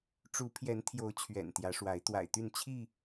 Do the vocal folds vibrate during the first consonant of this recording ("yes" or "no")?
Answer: no